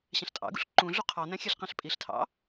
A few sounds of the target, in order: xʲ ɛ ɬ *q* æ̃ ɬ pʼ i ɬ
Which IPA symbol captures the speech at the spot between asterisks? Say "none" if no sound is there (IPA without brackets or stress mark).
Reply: q